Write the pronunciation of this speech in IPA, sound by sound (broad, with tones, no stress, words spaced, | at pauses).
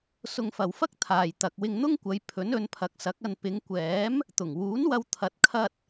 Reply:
sʊ˧ŋfɐ˨wfɐ˥k̚ t̪ʰaː˨jt̪ɐ˨k̚ wɪ˧ŋn̪ʊ˥ŋkʷɐ˨˧j pʰɵ˨˥n ɵ˨˧npʰɐ˨˥k̚sɐ˨˥k̚ɐ˧n pɪ˨˧ŋkʷɛː˨˥m | t̪ʊ˨˩ŋwuː˨˥nwɐ˧w t̪ʰɐ˨t̚kʰɐ˧t̚